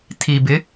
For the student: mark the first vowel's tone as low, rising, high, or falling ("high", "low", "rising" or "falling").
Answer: low